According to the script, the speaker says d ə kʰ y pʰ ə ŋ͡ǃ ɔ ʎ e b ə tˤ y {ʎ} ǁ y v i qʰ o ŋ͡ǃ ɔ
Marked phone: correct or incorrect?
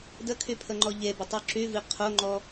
incorrect